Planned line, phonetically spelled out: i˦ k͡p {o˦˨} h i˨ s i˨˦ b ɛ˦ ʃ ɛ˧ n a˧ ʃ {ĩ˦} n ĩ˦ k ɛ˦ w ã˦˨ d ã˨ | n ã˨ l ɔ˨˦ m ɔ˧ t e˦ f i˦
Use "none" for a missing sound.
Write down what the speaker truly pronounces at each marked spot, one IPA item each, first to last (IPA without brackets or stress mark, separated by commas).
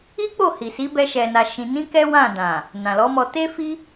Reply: o˦˨, ĩ˧